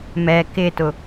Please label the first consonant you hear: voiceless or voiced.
voiced